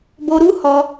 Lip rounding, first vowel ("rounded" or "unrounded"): rounded